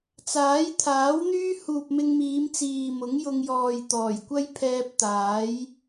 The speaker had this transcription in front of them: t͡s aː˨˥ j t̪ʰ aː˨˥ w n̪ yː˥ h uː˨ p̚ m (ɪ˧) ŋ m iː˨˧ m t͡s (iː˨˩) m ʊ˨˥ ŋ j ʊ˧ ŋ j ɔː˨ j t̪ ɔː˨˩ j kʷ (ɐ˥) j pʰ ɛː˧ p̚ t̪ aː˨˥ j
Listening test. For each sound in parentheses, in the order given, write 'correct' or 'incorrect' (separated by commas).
correct, incorrect, correct